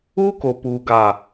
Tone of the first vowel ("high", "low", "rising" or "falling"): high